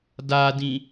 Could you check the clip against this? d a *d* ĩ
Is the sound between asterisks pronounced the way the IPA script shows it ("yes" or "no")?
yes